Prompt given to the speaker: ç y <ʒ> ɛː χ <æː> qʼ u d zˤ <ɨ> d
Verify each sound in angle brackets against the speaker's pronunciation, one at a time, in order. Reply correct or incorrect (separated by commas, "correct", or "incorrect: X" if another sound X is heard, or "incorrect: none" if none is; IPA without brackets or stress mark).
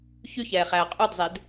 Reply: incorrect: ç, correct, incorrect: e